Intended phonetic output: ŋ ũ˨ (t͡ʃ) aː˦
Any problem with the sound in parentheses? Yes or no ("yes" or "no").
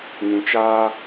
no